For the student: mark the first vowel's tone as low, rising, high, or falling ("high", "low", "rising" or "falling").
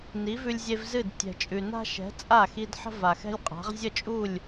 rising